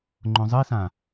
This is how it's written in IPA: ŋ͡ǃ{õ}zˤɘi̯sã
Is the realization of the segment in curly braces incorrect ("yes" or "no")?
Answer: no